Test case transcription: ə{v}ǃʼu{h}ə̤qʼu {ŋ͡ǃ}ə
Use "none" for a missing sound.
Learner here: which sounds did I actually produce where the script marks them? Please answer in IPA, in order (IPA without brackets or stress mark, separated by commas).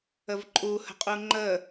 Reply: v, h, ŋ͡ǃ